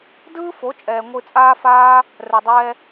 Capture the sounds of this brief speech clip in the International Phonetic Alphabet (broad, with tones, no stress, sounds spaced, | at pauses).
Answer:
d ɯː˦ f o˨˦ t͡ʃʼ ɛː˨ ŋʷ ɨ˧ t͡sʼ aː˦ f aː˦ | r ɛ˨ dˤ ɛː˧